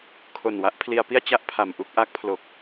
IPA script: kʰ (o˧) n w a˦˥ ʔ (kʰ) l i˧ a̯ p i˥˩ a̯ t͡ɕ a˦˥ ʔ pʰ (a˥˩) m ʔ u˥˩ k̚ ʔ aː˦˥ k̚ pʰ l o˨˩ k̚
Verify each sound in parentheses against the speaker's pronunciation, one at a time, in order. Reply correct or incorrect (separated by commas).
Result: incorrect, incorrect, incorrect